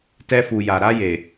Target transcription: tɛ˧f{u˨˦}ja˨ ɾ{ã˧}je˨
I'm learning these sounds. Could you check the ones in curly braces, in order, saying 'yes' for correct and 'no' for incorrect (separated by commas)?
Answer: no, no